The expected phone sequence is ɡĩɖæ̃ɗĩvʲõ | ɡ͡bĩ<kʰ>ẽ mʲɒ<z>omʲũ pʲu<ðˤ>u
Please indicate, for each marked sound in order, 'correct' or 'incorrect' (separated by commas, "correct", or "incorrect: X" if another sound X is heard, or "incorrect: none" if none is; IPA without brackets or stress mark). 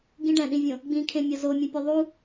correct, correct, correct